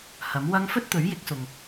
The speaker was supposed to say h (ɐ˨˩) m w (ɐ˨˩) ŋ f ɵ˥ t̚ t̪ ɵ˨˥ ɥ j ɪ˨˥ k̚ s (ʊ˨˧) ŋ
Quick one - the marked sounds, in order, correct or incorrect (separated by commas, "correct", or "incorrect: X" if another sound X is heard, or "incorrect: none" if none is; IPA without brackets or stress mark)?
incorrect: ɐ˨˥, incorrect: ɐ˥, incorrect: ʊ˨